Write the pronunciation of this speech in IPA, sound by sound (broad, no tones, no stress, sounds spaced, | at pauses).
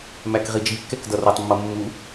m æ k ʁ i d͡ʒ i kː ɛ k d ʌ r ʊ tˤ mː ʌ mː u